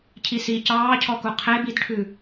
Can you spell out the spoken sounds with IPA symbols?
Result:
cʰ i s i c ɑː cʰ ɔ k u qʰ e b i d ʈʰ ʉ

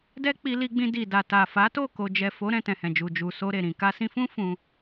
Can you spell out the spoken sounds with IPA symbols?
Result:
d ɛ˦ k͡p i˧ l i˧ ɡ͡b ĩ˧ d i˨ d a˨ t a˨ f a˨˦ t o˦˨ k o˨ d͡ʒ ɛ˨ f o˨˦ ɾ ɛ̃˦˨ t ɛ̃˨ h ɛ̃˨ d͡ʒ u˨ d͡ʒ u˨ s o˧ ɾ e˨ ɾ ĩ˨ k a˧ s ĩ˧ f ũ˦ f ũ˧

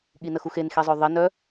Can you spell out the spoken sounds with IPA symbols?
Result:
ɠ i n ə x u x e n x i zˤ œ ðˤ i n œ

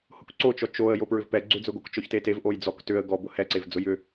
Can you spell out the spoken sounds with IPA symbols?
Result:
h ʊ k ǀ o t͡ʃ ɔ t͡ʃ o ə̯ j o p ɹ ʏ v p ɛ ɡ͡ǀ ʏ d͡z ʊ ɡ o k t͡ʃ ɔ ç t e t e v ʔ o j d͡z ɔ k t ʏ ə̯ ɡ ɔ b ʊ h ɛ ǀ e v d͡z ʊ j ʏ

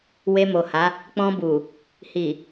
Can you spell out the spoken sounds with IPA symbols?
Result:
w e˧ m o˨ h a˨˦ | k͡p ɔ̃˧ b u˨ | h i˨

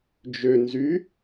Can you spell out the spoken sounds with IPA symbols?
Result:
d͡ʒ ø n z y

